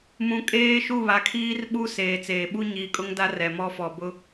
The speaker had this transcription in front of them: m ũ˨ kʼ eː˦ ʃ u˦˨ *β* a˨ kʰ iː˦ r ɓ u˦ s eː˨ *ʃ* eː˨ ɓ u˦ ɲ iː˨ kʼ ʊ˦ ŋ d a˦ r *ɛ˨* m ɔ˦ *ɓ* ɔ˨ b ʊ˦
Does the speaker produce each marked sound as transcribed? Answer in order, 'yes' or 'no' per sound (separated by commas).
yes, no, yes, no